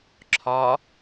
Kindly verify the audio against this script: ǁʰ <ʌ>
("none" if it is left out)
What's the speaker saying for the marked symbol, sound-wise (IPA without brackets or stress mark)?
ɒ